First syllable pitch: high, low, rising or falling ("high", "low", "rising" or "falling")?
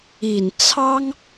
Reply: low